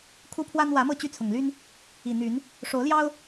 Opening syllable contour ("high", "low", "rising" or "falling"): high